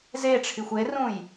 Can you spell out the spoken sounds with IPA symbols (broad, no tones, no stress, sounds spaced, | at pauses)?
z e ʈ͡ʂʰ i xʷ e r ũ j